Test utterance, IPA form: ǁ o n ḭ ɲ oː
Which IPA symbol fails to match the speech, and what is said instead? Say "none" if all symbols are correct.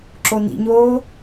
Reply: none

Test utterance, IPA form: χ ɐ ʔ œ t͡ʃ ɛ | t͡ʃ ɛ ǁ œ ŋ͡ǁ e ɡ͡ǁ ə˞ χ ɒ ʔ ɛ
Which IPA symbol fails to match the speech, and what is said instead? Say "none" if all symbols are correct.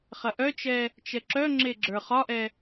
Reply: none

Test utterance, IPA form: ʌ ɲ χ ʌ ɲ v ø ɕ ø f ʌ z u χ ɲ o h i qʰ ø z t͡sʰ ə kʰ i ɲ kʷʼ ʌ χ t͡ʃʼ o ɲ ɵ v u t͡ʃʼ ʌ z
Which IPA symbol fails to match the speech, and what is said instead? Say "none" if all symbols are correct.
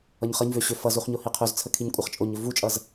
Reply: none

